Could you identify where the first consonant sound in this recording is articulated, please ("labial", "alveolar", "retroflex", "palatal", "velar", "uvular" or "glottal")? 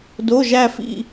alveolar